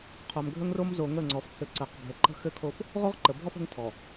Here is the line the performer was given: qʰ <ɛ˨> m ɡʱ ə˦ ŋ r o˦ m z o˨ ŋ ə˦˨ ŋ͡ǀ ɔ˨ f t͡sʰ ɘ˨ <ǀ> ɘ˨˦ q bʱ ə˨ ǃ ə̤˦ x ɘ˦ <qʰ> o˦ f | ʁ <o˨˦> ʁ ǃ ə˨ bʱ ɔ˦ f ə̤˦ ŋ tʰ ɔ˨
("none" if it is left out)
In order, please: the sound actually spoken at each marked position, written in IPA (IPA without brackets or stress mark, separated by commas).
œ˨, ǀ, kʰ, o˦